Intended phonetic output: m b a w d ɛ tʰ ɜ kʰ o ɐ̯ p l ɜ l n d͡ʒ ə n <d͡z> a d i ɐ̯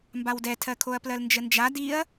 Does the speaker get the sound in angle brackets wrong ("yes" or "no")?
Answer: yes